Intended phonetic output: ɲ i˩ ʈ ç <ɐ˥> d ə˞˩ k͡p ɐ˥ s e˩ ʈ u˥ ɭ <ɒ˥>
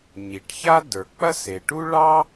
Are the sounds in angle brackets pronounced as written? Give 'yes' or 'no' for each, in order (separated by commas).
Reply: no, no